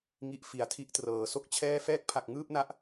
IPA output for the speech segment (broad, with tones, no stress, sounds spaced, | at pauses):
ŋ i˨˩ ʔ f i˩˦ a̯ tʰ i˦˥ ʔ t r ɤː˩˦ s o˥˩ k̚ t͡ɕʰ ɛː˥˩ f ɛː˥˩ k̚ pʰ a˨˩ k̚ ŋ ɯː˥˩ p̚ n a˦˥ ʔ